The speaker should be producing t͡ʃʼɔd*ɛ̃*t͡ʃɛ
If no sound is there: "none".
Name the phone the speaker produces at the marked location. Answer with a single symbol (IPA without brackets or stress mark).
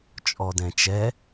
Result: ɛ̃